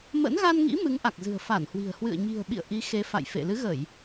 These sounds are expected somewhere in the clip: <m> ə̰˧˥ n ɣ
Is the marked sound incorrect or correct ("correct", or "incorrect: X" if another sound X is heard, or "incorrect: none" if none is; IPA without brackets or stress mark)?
correct